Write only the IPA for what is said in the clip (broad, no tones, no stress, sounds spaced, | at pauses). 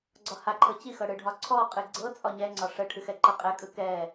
ɡ͡ǀ ɒ h a ǃʰ ɤ t͡ɕ i x ɤ ɽ ɯ ɖʱ ɒ ǀʰ ɔ qʼ ɨ ɡ͡ǀ ɤ t͡sʼ ɒ ɲ ɛ ŋ͡ǀ ɒ ʂ ə ʈʰ ɨ x ɛ ǃ ɤ qʼ ɛ kʼ ɯ k ɛ